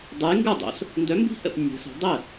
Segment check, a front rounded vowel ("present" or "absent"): present